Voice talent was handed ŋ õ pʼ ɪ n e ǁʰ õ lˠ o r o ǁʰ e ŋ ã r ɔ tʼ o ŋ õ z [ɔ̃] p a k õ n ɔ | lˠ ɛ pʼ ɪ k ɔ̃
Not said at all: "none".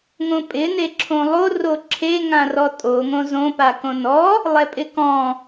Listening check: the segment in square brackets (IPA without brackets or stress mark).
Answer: õ